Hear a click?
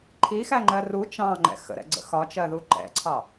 yes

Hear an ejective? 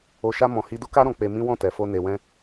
no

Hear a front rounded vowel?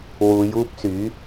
yes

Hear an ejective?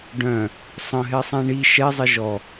no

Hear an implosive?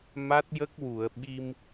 yes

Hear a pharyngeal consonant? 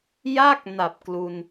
no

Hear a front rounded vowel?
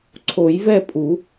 no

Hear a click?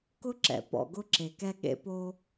yes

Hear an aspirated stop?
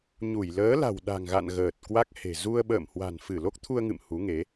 yes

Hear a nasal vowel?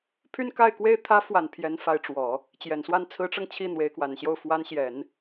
no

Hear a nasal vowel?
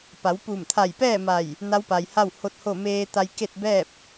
no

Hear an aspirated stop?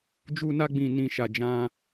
no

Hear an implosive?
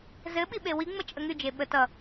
yes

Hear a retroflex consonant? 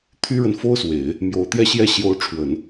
yes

